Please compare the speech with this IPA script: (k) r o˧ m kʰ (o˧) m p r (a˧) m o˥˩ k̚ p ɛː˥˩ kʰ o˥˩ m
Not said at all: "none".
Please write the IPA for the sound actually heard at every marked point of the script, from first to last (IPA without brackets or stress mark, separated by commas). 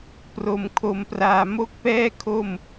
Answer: p, o˧, aː˧